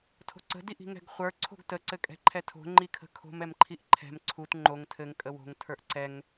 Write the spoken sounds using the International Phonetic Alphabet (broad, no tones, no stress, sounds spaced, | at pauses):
tʰ o̤ ǀ ə̤ d i ʔ i̤ ŋ ɛ̤ ɡ χʷ ə˞ ǀʰ o̤ ɡ t ə ǀ ɘ kʼ ɛ̤ ǃʰ ɛ tʰ o̤ ŋ͡ǃ i kʰ ə̤ kʰ o̤ m ɛ m ǃʰ i ʔ ǃʰ ɛ̤ m ǀʰ u t ŋ͡ǃ o ŋ tʰ ɘ ŋ kʼ ə w o̤ ŋ tʰ ə˞ ʔ ǀ ɛ ŋ